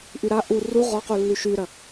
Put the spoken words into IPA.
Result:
ʔyɾa ʔu ru ʁɔqulːy ʃyɾɐ

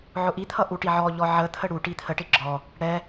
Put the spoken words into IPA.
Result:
ʕʊʔit̪ʰʌ ʔuʈiʕɔʎɔ ʕət̪ʰə ɽu ʈit̪ʰəʈɪ ɡ͡ǁɔ | ɽɛ

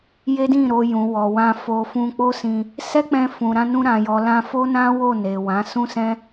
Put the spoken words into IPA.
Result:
je˦dĩ˦˨ɾo˧ jũ˨wɔ˨wã˧ fo˨ fũ˧k͡po˦sĩ˧ | sɛ˦k͡pɛ̃˧ fũ˨ɾã˧nũ˧ ɾã˨jɔ˨lã˧ fo˦nã˦ wo˦˨ne˨ wã˨˦ sũ˦sɛ̃˦

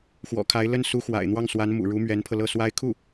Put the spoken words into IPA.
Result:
xwɔ̰˨˩kʰa˧˥ɪ̯ lə˥n su˧˥xwa̰˨˩ɪ̯n̪wɑ˥˩ŋswa˧˥n mṵ˨˩ɻu˧˥mɥɛ˧˥npʰɤ˧ lɤ˥˩swa˥ɪ̯ kʰu˥˩

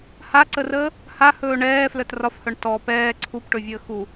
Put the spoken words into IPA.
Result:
haǀərəː | hahɵː ɳɛː flœtrɒfhœɳ tɔ pɛː ǀʰupʈɵvʲəː xu

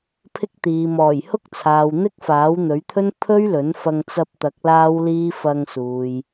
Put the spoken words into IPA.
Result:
pʰɪ˥k̚t̪iː˨ mɔː˨˩jhʊ˥k̚t͡sʰaː˨w n̪ɪ˥k̚faː˨˥w n̪ɵ˨˥ɥt̪ʰɵ˥n pʰɵ˥ɥlɵ˨˥nfɐ˧ŋ t͡sɐ˧p̚t̪ɐ˨˥k̚ laː˥wliː˥ fɐ˧ŋsuː˨j

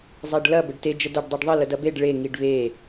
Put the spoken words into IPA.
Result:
zˤeɖlɐ bəɖte d͡ʒədɐɖ dˤeɖðˤə lədɐbeɖ ɭe ŋiɖβe

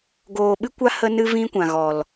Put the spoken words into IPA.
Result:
ɡoː˧ɓɨ˦kʷa˦ hə˦nɨ˦vĩ˦kʷã˨ ɣɔ˨l

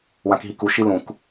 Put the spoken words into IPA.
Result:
wãkɦiku ʃilũk

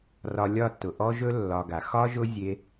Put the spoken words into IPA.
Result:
rɒ˧lʲɒ˦˨tːʊ˨ ʔɔ˦ʒɵ˦ lːɒ˧ɡa˨ xɒ˦ʒʊ˦ zʲe˧

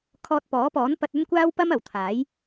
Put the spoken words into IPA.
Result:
kʰɔː˧t̚pɔː˨˥pɔː˨˥n pɐ˧t̚ɵ˥nkʷaː˥wpɐ˥m ɐ˨˩wt̪ʰaː˨˥j

